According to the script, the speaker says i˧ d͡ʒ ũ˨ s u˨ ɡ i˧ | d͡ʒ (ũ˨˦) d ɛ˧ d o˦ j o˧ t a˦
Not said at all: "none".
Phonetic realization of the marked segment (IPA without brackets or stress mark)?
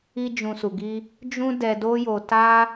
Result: ũ˦